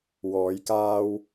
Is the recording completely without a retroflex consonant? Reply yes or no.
yes